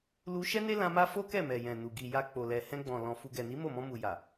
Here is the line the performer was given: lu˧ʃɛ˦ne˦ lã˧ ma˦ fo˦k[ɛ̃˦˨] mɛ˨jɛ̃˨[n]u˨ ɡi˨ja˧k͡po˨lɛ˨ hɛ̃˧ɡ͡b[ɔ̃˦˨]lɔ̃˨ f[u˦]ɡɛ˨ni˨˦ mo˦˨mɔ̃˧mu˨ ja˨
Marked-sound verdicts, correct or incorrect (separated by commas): incorrect, correct, incorrect, incorrect